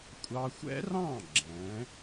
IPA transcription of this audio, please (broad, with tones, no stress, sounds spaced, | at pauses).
kʷʼ ɑ˧ xʷ ɛ̰˥ r ɑ̃˥˩ ɡ͡ǁ ɛ̃˩˥